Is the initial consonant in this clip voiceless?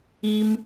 no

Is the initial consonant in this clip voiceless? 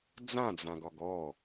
no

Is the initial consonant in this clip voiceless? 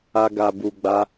no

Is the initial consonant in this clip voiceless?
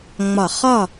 no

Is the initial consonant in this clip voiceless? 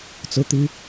yes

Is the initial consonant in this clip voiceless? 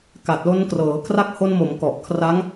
yes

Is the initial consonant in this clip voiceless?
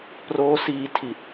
yes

